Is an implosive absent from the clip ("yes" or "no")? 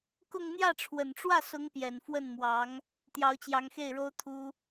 yes